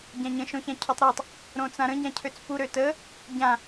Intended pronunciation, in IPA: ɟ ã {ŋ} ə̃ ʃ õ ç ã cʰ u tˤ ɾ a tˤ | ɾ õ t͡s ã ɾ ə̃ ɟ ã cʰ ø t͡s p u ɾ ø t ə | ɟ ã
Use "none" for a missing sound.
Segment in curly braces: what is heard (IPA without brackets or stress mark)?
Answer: ɲ